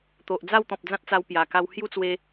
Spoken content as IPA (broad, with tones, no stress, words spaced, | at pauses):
t̪o˨ʔd͡za˥˧wt̪ɔ̃˨p̚ d͡zã˦t̚t͡sa˧wpja˨˩ka˧w hju˥˧t͡swe˧